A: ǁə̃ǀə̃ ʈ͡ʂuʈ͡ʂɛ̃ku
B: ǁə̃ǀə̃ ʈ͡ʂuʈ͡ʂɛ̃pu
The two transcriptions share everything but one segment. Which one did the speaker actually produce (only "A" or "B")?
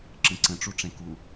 A